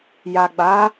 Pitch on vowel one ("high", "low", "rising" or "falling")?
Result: low